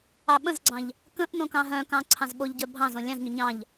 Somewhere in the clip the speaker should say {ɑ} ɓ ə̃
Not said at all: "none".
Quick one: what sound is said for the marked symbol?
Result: ɑ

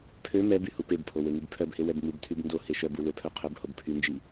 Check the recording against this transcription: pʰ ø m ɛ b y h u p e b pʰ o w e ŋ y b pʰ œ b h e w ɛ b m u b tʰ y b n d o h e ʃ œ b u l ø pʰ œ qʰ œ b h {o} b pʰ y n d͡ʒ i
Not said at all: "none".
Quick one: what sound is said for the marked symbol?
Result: o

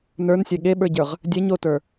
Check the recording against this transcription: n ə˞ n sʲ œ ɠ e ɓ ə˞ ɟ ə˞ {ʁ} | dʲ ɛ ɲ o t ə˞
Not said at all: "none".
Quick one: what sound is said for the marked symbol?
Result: ʁ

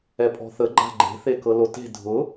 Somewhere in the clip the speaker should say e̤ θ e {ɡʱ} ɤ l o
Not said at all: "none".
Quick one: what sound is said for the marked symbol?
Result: k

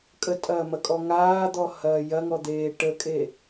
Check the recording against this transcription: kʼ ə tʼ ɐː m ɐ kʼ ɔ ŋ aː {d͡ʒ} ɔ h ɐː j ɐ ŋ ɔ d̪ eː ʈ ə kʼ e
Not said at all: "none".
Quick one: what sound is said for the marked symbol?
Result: d̪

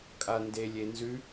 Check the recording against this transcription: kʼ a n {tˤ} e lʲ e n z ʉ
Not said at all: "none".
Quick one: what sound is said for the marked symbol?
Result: d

